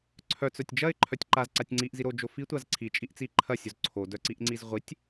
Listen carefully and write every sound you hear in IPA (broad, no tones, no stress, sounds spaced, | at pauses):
ǀʰ œ t͡s œ tʲ d͡ʒ ɐ ɪ̯ ǃʰ œ tʲ ǃ a z ǀ a tʲ ŋ͡ǀ i ʔ z i ɾ o d͡ʒ o f i tʷ a z ǀʰ i t͡ʃʼ i ʔ t͡s i ǃʰ ɐ sʲ o z ǀʰ o d œ ǀ i ʔ ŋ͡ǀ i z ʁʷ i tʲ